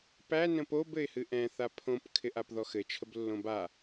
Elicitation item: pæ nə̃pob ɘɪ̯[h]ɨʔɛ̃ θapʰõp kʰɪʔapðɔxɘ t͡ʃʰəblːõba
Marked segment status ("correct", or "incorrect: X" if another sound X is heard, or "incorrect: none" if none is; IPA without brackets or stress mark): correct